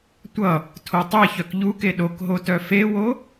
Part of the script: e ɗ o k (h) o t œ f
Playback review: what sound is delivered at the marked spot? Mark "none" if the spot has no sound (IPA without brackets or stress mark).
ɦ